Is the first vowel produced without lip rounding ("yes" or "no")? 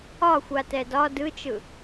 no